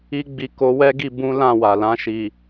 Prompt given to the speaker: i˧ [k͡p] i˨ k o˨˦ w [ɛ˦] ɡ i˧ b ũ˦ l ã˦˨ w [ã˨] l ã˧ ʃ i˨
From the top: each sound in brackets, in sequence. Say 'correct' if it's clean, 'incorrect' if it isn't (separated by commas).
incorrect, correct, incorrect